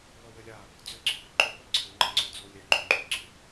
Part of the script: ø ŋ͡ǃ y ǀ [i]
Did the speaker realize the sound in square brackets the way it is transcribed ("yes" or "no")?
no